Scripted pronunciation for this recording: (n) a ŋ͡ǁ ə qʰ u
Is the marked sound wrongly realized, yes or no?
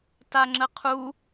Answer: yes